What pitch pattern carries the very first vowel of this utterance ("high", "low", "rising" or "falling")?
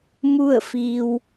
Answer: falling